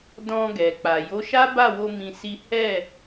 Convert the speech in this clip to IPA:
d ɔ̃˧ ɡ ɛ˨ k͡p a˨ j o˨˦ ʃ a˦ b a˦˨ w o˧ m ĩ˧ s i˦ h ɛ˦˨

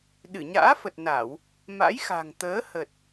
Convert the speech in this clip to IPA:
ɗ ɨ˧˩ ɲ a̰ː˧˥ f ə˨˩ t̚ n a˧˩˨ w | m a̰˧˥ j x a̤˨˩ ŋ t̪ əː˨˦ h ə˨˩ t̚

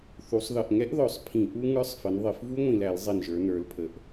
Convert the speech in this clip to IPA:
θ u˩˧ sˤ ð ʌ˨˩ ʔ ŋ ɛ˦˥ ʔ ð ɔ˨˩ sˤ pʰ ĩ˧˩˧ ʔ u˦˥ ŋ ə˞˦˥ sˤ f ə˩˧ n ðˤ ɪ˧˩˧ f v u˦˥ ŋʷ ĩ˨˩ l æ˧˩˧ l zˤ i˨˩ n ʒ ə˞˩˧ n ə˞˩˧ l pʰ ə˩˧ ʔ

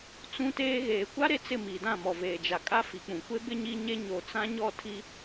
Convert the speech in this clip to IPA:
t͡s ũ˦ t eː˦ ɣ eː˨ kʷ a˦ ɾ e˦ t͡s ɪ˦˨ m i˨ d ã˦˨ m ɔ˨ v eː˨ d͡ʒ a˨ kʼ a˦ f i˨ k͡p ũ˨ kʷ e˦ b ɪ˦ ɲ i˦ ɲ e˦ ɲ o˨ t͡s ã˦ ɲ ɔ˦˨ tʰ i˦

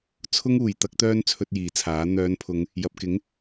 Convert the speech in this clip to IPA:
t͡sʰ ʊ˥ ŋ uː˨ j t̪ ɐ˥ k̚ t̪ œː˥ n t͡sʰ ɵ˧ t̚ j iː˨ t͡sʰ aː˨˥ n̪ œː˨˧ n pʰ ʊ˨˧ ŋ | j ɐ˨ p̚ k ɪ˨˥ ŋ

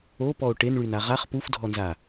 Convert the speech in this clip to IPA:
o p ɔ o̯ ʈ e n ɭ y n a ʁ a χ p u f dʱ ɔ n z a

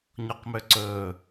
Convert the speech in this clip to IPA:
ɲ ɔ q m ø ǀ ɵː

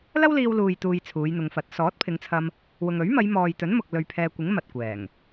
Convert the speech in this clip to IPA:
l ɐ˥ w l iː˧ w l uː˨ j t̪ uː˨ j t͡sʰ uː˨˧ j n̪ ʊ˨˧ ŋ f ɐ˨˥ t̚ s ɔː˨˥ t̚ pʰ ɪ˨˧ ŋ t͡sʰ ɐ˧ m | w ʊ˨ ŋ ɵ˨˥ ɥ m ɐ˨˧ j m ɔː˨ j t̪ ɵ˨˥ n m ʊ˨ k̚ l ɵ˨ ɥ pʰ ɛː˨ kʷ ɪ˨˥ ŋ m ɐ˨ t̚ kʷ ɛː˨˩ ŋ

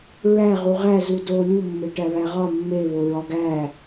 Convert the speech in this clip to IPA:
ɹ æ ʁ u ʁ æ z u d o lʲ u mː e ʈ æ β æ ʁ ɒ mː e β o ɹ ɒ ɡ æ

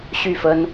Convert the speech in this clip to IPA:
ɕ y˥˨ f ə˦ n

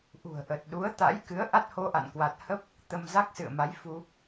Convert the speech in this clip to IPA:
ʔ ṳ˨˩ ə̯ ʔ ə˨˩ t̚ ɗ u˨˦ ə̯ t̪ a̰˧˥ j k ɨ˨˦ ə̯ ʔ a˦˥ t̚ h o˧ ʔ a̰˧˨ n k w a˨˩ t̚ h ə˦˥ p̚ | t̪ ə˧ m z a˦˥ k̚ s ɨ̰˧˨ ə̯ m a˨˦ j f u˧

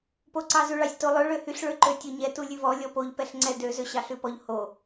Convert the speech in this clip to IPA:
p o ǀ ɑ z ʉ ɭ ɑ sʲ t o lˠ ø ɭ ø h y ɬ ɭ ø ǃ ø tʲ o ɲ ɛ t u lʲ ʉ v ɔ lʲ ɔ p o ʎ p ɛ ɬ ŋ͡ǀ ɛ d ø z ø ɕ ɑ ɬ ʉ p ɔ ʎ h o

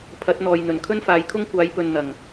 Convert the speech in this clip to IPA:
pʰ ɐ˨˥ t̚ n̪ ɔː˨ j n̪ ɵ˨˩ n kʰ ɵ˥ n f aː˨˧ j kʰ ʊ˥ ŋ kʷ aː˨˥ j p ɵ˨ n n̪ ɐ˨˩ ŋ

